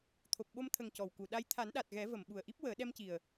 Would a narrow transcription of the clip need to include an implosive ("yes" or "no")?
yes